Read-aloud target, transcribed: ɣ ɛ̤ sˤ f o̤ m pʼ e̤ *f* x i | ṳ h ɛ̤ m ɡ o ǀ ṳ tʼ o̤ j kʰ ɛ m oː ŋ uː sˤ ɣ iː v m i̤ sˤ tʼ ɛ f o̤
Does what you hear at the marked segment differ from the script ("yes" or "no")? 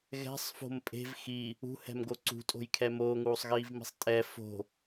yes